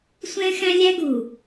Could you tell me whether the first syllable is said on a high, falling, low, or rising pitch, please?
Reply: high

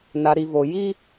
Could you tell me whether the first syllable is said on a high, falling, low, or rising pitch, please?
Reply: low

